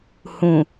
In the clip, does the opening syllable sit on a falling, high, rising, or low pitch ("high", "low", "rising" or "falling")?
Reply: low